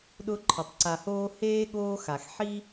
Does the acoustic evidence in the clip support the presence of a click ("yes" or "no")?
yes